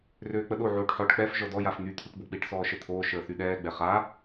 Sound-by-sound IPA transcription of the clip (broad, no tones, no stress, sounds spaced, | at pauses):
r øː k͡p ə ɗ o ʕ oː ʈ ħ ɔ ʈ k͡p ɛ f ʒ ɔ d ɔ j a f n̪ y t̪ʰ y ʈ b o k͡p i ʈ s ɔː ʃ ə t̪ʰ oː ʃ əː θ y ɗ ɛː ɡ͡b ɛ χ a